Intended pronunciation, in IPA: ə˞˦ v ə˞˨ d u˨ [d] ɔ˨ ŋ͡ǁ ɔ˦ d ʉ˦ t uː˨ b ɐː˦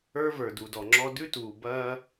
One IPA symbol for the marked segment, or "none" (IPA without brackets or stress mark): d